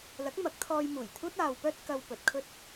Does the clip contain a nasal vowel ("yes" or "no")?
no